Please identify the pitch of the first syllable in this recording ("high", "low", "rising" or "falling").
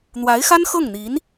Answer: rising